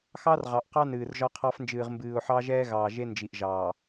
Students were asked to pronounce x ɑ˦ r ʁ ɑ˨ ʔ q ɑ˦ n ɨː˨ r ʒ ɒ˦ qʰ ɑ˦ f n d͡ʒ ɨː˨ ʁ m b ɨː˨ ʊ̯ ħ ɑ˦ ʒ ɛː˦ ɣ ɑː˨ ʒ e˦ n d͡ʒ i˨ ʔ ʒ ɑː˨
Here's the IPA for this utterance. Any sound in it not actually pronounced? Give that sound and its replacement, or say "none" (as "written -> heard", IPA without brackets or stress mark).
none